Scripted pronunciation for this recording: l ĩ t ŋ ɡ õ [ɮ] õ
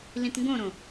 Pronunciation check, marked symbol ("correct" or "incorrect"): incorrect